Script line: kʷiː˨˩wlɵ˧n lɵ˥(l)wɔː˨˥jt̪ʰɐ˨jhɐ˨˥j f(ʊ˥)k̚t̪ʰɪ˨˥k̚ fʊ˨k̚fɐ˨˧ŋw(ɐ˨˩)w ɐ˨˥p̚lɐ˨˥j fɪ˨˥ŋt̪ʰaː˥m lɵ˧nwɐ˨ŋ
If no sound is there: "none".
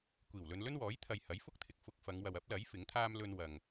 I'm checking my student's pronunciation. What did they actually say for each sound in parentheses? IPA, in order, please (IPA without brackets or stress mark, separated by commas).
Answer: n, ʊ˥, ɐ˨